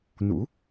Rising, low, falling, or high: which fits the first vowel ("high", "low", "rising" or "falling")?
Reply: rising